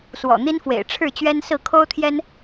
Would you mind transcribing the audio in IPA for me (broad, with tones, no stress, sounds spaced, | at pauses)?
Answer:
s w ɔ̰˨˩ n̪ i˦ n f w ḛ˨˩ ɪ̯ ʈ͡ʂʰ ɻ̩˥˨ t͡ɕ ɥ ɛ˦ n s ɹ̩˥˨ kʰ o˦ ʊ̯ t̪ʰ j ɛ˦ n